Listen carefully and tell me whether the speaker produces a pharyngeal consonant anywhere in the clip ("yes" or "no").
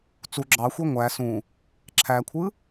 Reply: no